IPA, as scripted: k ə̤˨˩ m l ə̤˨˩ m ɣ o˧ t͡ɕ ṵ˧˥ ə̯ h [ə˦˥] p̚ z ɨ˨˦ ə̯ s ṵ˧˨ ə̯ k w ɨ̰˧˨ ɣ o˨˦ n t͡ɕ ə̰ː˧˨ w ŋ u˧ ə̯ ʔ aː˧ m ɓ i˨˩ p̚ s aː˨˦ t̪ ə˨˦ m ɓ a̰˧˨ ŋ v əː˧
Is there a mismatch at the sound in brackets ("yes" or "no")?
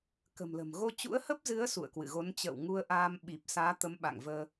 no